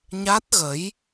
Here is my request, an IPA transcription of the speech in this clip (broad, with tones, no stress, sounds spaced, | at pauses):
ɲ a˦˥ t̚ ɣ ə˨˦ j